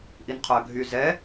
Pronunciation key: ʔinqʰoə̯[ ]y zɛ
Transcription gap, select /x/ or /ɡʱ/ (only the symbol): ɡʱ